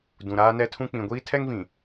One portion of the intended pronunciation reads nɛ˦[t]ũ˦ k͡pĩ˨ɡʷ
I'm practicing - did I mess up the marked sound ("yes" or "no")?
yes